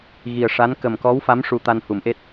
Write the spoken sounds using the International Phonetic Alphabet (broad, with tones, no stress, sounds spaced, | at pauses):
ɣ i˨˩ ə̯ ʂ a˧˥ n k ə˨˩ m k ɔ˧˥ w f a˧˥ m ʂ u˧ t̪ a˧ n h u˨˩˦ m ʔ e˦˥ t̚